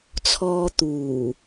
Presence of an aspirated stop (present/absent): present